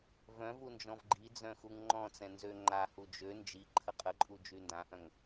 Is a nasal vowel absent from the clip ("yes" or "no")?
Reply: no